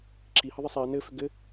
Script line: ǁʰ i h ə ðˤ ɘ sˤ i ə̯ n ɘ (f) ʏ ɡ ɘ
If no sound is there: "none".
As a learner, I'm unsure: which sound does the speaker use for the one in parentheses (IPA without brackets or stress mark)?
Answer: f